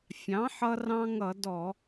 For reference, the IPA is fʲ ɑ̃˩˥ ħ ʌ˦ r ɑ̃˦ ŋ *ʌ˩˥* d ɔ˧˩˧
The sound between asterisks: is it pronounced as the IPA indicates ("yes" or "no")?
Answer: no